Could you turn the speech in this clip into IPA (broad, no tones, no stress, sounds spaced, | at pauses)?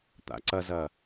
t̪ a̰ ǀ ɐ z ɐ